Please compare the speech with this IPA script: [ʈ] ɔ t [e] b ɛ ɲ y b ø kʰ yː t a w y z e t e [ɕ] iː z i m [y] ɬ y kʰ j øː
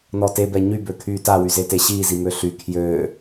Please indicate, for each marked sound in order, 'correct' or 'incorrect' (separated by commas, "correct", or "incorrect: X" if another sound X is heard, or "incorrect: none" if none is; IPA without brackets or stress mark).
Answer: incorrect: n, correct, correct, incorrect: ø